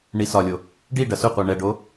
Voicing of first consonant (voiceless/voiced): voiced